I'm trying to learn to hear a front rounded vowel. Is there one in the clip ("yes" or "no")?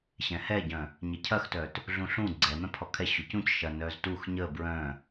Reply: yes